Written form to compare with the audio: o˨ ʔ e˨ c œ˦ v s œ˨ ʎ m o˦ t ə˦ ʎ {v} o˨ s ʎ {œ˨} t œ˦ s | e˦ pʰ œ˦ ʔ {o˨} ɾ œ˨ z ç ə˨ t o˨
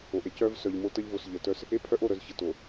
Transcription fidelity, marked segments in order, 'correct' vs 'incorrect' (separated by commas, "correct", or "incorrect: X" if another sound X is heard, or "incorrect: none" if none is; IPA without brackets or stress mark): correct, incorrect: ə˨, incorrect: o˦˨